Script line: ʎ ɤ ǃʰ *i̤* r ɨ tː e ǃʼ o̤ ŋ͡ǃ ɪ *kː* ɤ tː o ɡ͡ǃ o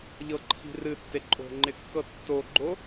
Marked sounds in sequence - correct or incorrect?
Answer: correct, correct

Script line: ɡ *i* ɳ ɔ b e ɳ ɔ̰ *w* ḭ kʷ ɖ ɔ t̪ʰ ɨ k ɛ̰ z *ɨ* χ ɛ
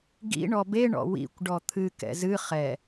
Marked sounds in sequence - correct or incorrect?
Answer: incorrect: ḭ, correct, correct

